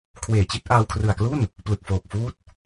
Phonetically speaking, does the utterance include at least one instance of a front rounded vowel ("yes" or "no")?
no